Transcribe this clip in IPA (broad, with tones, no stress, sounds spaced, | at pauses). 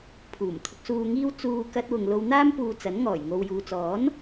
pʰ uː˨˩ m t̪ʰ ʊ˨ k̚ s uː˨ ŋ iː˧ w t͡s uː˧ k ɐ˥ t̚ w ʊ˧ ŋ l o˧ w n̪ aː˥ m p uː˧ t͡s ɐ˨˥ n ŋ ɔː˨˩ j ŋ o˨ w j uː˨ t͡s ɔː˨˥ n